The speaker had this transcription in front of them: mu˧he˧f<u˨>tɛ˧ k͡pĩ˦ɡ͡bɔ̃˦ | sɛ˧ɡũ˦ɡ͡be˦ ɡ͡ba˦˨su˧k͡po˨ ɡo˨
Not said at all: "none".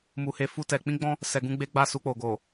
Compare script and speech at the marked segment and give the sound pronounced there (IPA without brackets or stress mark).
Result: u˦